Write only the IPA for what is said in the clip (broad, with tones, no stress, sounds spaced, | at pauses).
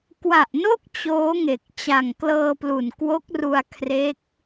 k w a˨˩ ʔ n o˥˩ k̚ t͡ɕ oː˦˥ ŋ e˨˩ k̚ t͡ɕ a˨˩ ŋ k l ɤː˧ p l u˨˩ n k w o˦˥ k̚ r u˧ a̯ kʰ r e˦˥ k̚